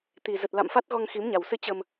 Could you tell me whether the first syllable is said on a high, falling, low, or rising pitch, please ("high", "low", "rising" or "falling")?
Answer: low